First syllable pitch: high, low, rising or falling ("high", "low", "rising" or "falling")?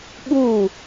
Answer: falling